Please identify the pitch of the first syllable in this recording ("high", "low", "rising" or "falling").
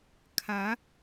rising